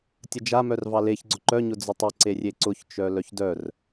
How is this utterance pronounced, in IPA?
tʲ ə d͡ʒ a m œ r v ɑ l e ç ɡ͡ǀ ʊ ǃ œ ɲ ʊ d͡z ʊ tˤ ɪ ǀ e rʲ e ǀ ʊ ç t͡ʃ œ l œ ç d œ r

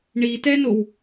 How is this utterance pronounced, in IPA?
ɳ i t ɛ n o w

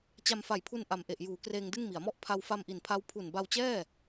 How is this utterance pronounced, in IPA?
t͡ɕ a˧ m f a˨˩ j pʰ u˧ n ʔ a˨˩ m ʔ e˨˩ ʔ j uː˩˦ k r eː˧ ŋ d ɯ˥˩ ŋ m i˩˦ a̯ m ɔ˥˩ ʔ pʰ a˧ w f a˧ m ʔ i˨˩ n pʰ a˦˥ w pʰ u˨˩ n b a˧ w t͡ɕ ɛː˥˩

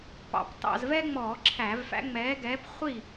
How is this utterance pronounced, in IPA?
p ɑ̰˨˩ p t ɑ̰˧˩˧ z v ɛː˦ ŋ͡m ɔː˧˩˧ ǁʰ æ˧˩˧ v f æ̰˨˥ ŋ͡m ɛː˨˥ ɡ ɛː˨˥ p χʷ i˥˨

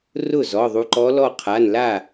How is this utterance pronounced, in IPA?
r ʊ˥˩ z ɔ˩˧˩ ðˤ u˧ ǃ ɔ˧˥ l ɔ˥˧ qʰ a˩˧˩ n l a˥˩

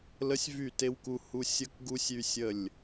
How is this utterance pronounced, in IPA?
l ə˦ sʲ v y˦˨ t e˦ w k u˦ h u˦ sʲ ə˦ k ɡ u˦ sʲ y˦ sʲ ə˦˨ lʲ

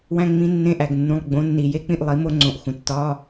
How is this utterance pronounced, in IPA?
w æ̃˦˨ ŋ͡m ĩ˧˥ nː ẽ˧˥ ʔ æ˩ ɡ nː ũ˩˧˩ lˠ ɡ͡b õ˩˥ nː i˩ j e˧˥ k͡p ĩ˦˨ ʔ lˠ i˩˥ m o˧˥ ŋ͡ǀ õ˩˥ ʔ x ũ˩ tː ɒ˧˥˧

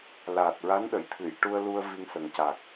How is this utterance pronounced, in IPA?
l aː˨˩ t̚ ɹ a˧˥ n ɗ ə˨˩˨ j t̪ʰ ɨ˨˩˨ j ʈ u˧ ə̯ l u˧ ə̯ v i˧ ŋ s ə˨˩ ŋ c a˨˩ k̚

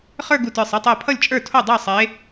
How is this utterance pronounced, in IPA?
χ ə˞˥˧ ɡ u˧˩ t ə˞˧˩ sˤ ɛ˥˧ tˤ ɜ˧˩ pʰ ʌ˥˩ lʲ t͡ʃʼ ə˞˥˩ tʰ o˥˩ dˤ ə˞˥˩ sˤ e˨˦

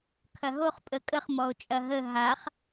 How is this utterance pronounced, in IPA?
kʰ ɐ ɦ o χ pʼ ə kʼ ə χ m ɔ o̯ t͡ʃʼ ɐ ɦ ə ɦ a χ

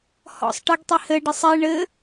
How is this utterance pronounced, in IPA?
h ɔ̰ sˤ ʈ ɘ ɡ tˤ i h ɘ ɖ ɨ sˤ i ɳ ɘ

